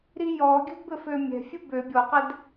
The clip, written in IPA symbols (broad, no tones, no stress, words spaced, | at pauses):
ɾijɔɡʲə̤d bɘfømʲɛ̤ fʲəbø bʲɔqɛd